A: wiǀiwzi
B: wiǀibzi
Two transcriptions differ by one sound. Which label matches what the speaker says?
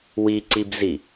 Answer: B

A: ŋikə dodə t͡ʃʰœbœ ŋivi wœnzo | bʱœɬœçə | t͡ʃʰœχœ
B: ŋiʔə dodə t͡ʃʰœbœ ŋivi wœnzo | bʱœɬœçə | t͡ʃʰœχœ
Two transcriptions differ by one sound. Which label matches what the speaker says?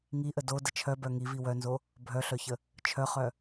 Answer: B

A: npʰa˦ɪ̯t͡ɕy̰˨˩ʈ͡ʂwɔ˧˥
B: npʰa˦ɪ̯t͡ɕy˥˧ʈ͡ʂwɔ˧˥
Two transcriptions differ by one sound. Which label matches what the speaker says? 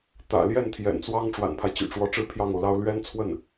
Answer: A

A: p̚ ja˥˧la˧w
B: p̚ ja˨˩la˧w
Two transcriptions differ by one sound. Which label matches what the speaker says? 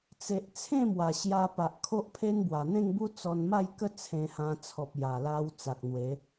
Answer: B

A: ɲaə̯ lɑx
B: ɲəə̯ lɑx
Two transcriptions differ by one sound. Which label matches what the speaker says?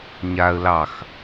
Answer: A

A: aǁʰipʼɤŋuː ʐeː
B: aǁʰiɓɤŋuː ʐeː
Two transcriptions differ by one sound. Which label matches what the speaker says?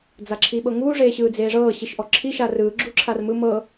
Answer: B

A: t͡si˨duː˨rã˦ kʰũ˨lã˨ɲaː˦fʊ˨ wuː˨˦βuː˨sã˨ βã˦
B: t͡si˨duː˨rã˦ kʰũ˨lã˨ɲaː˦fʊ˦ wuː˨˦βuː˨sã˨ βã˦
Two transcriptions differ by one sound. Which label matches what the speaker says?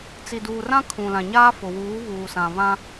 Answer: A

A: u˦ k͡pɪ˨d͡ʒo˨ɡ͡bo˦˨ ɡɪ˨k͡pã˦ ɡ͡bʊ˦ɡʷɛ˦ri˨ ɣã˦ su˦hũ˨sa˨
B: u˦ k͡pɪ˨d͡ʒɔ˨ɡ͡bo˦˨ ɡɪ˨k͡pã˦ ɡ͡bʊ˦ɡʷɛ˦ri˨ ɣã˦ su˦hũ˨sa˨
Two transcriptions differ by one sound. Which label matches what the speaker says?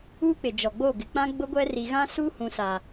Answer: B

